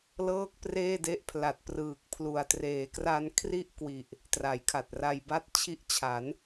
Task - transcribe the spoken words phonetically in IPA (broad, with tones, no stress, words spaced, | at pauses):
lɤː˥˩k̚preː˥˩de˦˥ʔ pʰla˨˩t̚prɯː˨˩k̚ pʰlu˨˩a̯ treː˩˦kra˧nkʰri˥˩ʔkwi˨˩ʔ | tra˩˦jkʰa˨˩t̚ra˧jba˥˩t̚ t͡ɕʰi˦˥ʔt͡ɕʰa˩˦n